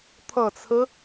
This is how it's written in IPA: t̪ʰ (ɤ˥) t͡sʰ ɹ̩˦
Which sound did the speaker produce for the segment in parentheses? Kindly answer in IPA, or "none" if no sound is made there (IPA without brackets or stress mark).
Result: ɤ˨˩